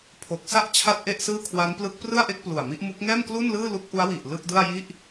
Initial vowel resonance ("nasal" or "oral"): oral